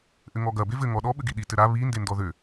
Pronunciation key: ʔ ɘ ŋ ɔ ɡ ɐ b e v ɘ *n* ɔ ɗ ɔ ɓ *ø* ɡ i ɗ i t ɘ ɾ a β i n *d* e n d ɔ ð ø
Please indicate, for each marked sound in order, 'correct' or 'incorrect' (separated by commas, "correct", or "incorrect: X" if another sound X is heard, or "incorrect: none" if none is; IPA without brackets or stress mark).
incorrect: ŋ, incorrect: ɘ, correct